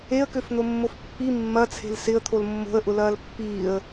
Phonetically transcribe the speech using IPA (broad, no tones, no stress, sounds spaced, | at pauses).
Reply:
e ə̯ k ø f n̪ o mː o f pː i mː ɐ t͡sʰ e̤ l s ɪ ə̯ t̪ʰ o l mː o̤ ə̯ ʔ ʊ l ɐː l pː iː ə̯